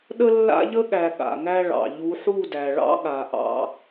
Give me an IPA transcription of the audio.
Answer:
ɗ ə˦ lː a̰˦ ʎ ə˦ ɠ æ˨ ɠ a̰˨ ŋ æ˦ ɭ ɑ̰˨ ʎ u˨˦ ħ u˦˨ d æ˨ ɭ ɑ̰˦ ɠ a˨ ʔ ɑ̰˦

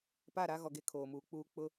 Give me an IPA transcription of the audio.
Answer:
p a˦˨ ɾ a˦ ɣ ɔ˨ ɡ e˦ kʰ oː˨ m uː˨ k͡p uː˦ k͡p ʊ˦

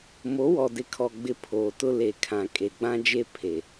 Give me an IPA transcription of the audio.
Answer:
m o˨˦ w ɔ˨ d ɪ˨ kʰ ɔ˨ ɡ͡b ɪ˨ pʰ oː˨ t ʊ˦ l e˨ kʰ ã˨ kʼ e˨ ɡ͡b ã˦ d͡ʒ e˦ pʰ e˨

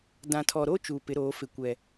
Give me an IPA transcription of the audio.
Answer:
d ã˨ tʰ ɔ˨ ɾ o˦ t͡ʃ uː˨ p ɪ˨˦ ɾ oː˨˦ f ɪ˨ kʷ ɛ˨

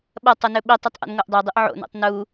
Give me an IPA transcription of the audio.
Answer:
ɓ ɐ tˤ ɨ n ɵ ɓ i tˤ ɵ tˤ ʔ ṵ n ŋ o ʔ dˤ e dˤ ɨ ʔ ʕ o̰ n ṵ tˤ n u

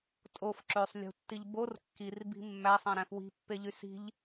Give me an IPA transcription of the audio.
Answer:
tʼ o f ǁ ø sˤ lʲ ṳ tː i ʎ b o r kː i r b i̤ mː æ sˤ æ̃ ɾ æ̃ f w i̤ pː e ʎ y s i̤ ʎ

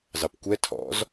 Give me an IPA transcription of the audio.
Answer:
z ɑ p kʷ ɛ tʰ ɔ̰ z

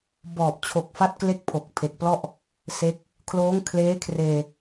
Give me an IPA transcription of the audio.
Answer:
b ɔː˨˩ p̚ t͡ɕʰ o˨˩ k̚ f a˦˥ t̚ k l e˥˩ k̚ pʰ o˨˩ k̚ pʰ e˨˩ k̚ p l ɔ˥˩ ʔ | s e˦˥ k̚ | kʰ l oː˦˥ ŋ kʰ l eː˦˥ kʰ r eː˧

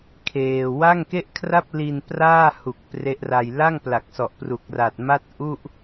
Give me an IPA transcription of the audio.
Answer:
kʰ eː˧ w a˥˩ ŋ k e˥˩ ʔ kʰ r a˥˩ p̚ l i˧ n p r aː˥˩ h u˨˩ k̚ p r e˦˥ ʔ r a˧ j l a˥˩ ŋ p l a˨˩ k̚ s ɔ˨˩ ʔ p r u˨˩ k̚ r a˨˩ t̚ m a˥˩ t̚ ʔ u˥˩ ʔ

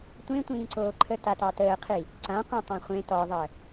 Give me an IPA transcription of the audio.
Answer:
tʷ ẽ tʷ ĩː ǀ oː ǃʰ ə t a t ɑ t əː qʰ i | ǀ ã qʷ ĩ tˤ ɑ̃ χʷ ẽ t ɔ ðˤ əː

